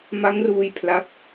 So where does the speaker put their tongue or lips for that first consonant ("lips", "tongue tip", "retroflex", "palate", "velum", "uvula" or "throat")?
lips